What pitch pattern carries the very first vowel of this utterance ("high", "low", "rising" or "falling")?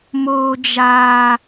low